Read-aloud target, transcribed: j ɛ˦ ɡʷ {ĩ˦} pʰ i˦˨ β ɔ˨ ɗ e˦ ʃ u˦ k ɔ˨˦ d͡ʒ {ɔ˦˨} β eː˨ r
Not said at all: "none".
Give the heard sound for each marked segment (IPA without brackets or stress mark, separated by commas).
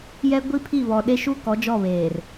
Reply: i˦, ɔ˦˨